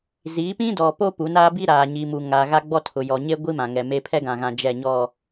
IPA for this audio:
ziː˨˦pĩ˦ dɔ˨po˦ pu˨˦naː˦bi˦ɾaː˨ ɲi˨mu˨ ŋa˨ ɣa˦ɡ͡bɔ˦tʰʊ˨ jɔ˨ɲe˦ɡʷi˦ mã˨ŋɛ˨me˦ pʰɛ˦ɡã˨ɣã˨ d͡ʒɛ˦˨ɲɔ˦˨

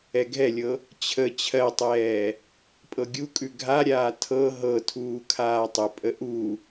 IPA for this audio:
ɛɡʱɛlʲɤ | t͡ɕʰə t͡ɕʰɜtˤɛː | pʼɤɡʲukʼʉ ɡʱaɾʲaː tʰɤ ɦɤtʰuː kʰaːtˤʏpʼə ʔu

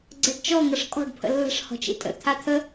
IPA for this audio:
ɡ͡ǀɜɖt͡ʃɔ ŋʌʂkʼɔ̤ɖ pʰə̰lːə̤ʂ hɔ̤t͡ʃḭtʼə̰ t̪ʰat̪ʰə

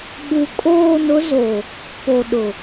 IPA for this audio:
ɓu˨kʼoː˦˨nʊ˦ zo˨ | po˨ɗʊ˨

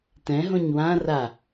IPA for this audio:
tɛ̃ɦõɲ wã ra

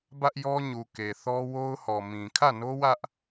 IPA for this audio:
bä˦ʔjɔ˦ɲu˨ ke˨θɔ˦ wo˦ʊ̯hɔ˨mĩ˨ kʰä˦˨no˦wä˦ʔ

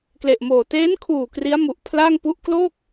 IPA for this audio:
kle˨˩ʔmoː˨˩ teː˦˥nkʰuː˨˩ kri˦˥a̯mu˨˩ʔ pʰla˥˩ŋ pu˥˩ʔ kloː˥˩k̚

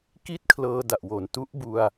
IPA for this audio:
ki˥˩t̚kʰlɤː˧ da˨˩ʔwo˩˦n tu˦˥ʔbu˧a̯

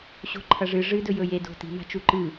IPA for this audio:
ɕo̤ǃʰɐʐɨ ʐɨ dɵjɵje do̤ti̤ ma̤t͡ʃuǃɨ

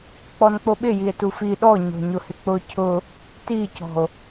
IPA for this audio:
k͡pɔnk͡poɓɪ jie̯tufi ɗɔ ɲɔ̤ɲʊhɪk͡pʊ cʰʊ | ticɔ̤o̯

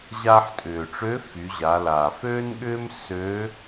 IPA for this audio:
ʑaː˧ħtʼʏː˩ʈ͡ʂø˧˥ fy˩˧ʑa˩˧ laː˩føː˥nɠʏː˥m søː˧˥

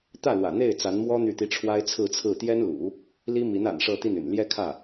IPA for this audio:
t̪ä˥˩lwä̰˨˩n̪e˥˩ɪ̯ t͡sa˧˥nmwɔ˥ n̪y˥˩t̪i˥ ʈ͡ʂʰwa˥ɪ̯t͡sʰɹ̩˥˧t͡sʰɹ̩˥˩ t̪jɛ˥nlṵ˨˩˦ | li˥mi˧˥n a̰˨˩n ʂɤ˥˧t̪i˥˩ny̰˨˩n ljɛ˥kʰä˥˩

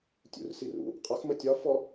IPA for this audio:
tʲṵrsirṵ | qʼʌxmə tʲɒfɔ

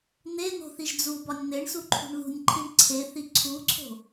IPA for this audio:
n̪en̪o̤ θiʒd͡zubɒnʲ n̪eɳsu ǃʰṳɳðṳnʲǃʰiɳ ǀʰeθi ǀʰuǀʰo̤

